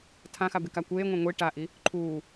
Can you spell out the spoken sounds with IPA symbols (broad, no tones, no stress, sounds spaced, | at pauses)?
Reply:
tʰ ã x a b e k a kʷ eː ŋʷ ɛ̃ ŋʷ i ʈ a ʔ i | ǃʰ uː